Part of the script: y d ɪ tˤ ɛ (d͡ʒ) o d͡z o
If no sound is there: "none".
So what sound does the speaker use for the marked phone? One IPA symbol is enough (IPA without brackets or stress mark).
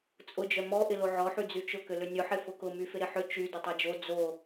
d͡ʒ